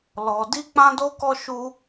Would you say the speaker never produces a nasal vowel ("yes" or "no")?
no